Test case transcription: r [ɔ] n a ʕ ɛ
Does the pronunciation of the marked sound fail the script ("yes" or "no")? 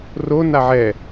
yes